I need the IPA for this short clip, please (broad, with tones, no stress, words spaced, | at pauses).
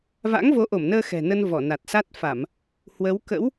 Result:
va̰˧˥ŋvo˨˦ʔo˧˩mnəː˧ xɛ̤˨˩nə˧n vɔ˧˩na˨˩t̚sa˦˥t̚fa˧˩˨m | hwə˨˦w kə̰˧˥w